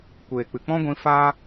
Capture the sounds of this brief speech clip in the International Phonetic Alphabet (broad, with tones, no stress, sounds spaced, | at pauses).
kʷ eː˨ k͡p ɨ˨ k͡p ɔ̃˦ ɡʷ ĩ˧ f aː˦